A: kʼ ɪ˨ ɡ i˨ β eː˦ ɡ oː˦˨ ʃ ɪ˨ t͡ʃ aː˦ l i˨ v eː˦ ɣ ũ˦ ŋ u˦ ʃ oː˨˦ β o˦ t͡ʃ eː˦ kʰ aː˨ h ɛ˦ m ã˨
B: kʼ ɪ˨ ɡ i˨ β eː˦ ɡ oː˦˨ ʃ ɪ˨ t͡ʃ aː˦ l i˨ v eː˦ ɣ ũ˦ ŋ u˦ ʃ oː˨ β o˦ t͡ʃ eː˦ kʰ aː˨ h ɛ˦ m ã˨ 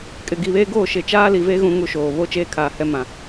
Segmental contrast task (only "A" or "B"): B